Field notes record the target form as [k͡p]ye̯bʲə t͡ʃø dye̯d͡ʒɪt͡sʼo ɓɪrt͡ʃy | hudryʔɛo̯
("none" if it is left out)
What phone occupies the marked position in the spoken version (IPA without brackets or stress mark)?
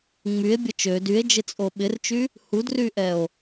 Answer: ŋ͡m